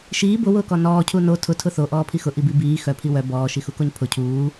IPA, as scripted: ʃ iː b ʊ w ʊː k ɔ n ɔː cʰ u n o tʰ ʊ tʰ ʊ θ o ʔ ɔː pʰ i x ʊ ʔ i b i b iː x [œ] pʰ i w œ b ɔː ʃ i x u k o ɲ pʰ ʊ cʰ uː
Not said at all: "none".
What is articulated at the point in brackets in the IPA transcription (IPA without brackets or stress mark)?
œ